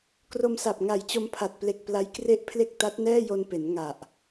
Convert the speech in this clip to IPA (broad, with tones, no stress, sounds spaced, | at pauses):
k r o˧ m s a˨˩ p̚ ŋ a˨˩ j t͡ɕ o˧ m pʰ a˨˩ t̚ p l e˨˩ k̚ p l a˦˥ j k r e˥˩ ʔ pʰ l e˥˩ k̚ t a˦˥ t̚ n ɛː˥˩ j o˧ n p e˩˦ n ŋ a˨˩ ʔ